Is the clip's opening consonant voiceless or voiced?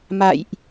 voiced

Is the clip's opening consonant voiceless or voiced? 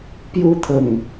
voiceless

